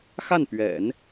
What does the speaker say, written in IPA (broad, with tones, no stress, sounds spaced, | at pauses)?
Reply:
x a˥˩ n p ɥ ɛ̰˨˩˦ n